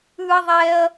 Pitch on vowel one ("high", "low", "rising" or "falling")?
high